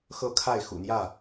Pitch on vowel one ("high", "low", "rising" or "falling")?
falling